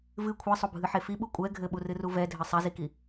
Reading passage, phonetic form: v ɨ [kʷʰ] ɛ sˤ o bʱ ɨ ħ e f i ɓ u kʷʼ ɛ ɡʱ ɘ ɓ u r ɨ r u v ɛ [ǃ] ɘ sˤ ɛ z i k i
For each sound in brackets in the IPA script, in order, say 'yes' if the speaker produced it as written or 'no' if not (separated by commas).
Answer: yes, no